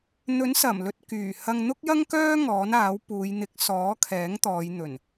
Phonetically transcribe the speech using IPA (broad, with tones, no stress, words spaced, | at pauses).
n̪ɵ˨˥nsɐ˨˩mlɵ˨t̚kyː˨˩ hɐ˧ŋn̪ʊ˥k̚jɐ˥ŋkœː˥ ŋɔː˨˥naː˨˥wpuː˨˧j n̪ɪ˨˥k̚ sɔː˨˥kʰɛː˨˥ŋt̪ɔː˨˧j n̪ɵ˨˩n